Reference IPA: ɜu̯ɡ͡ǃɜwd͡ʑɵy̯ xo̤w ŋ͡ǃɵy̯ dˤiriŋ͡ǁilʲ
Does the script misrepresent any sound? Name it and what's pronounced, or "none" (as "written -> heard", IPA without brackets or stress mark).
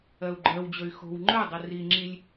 none